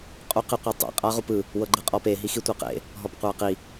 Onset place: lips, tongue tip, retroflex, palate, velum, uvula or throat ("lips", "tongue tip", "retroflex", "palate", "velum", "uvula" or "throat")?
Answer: uvula